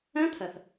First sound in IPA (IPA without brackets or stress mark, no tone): ɛ̃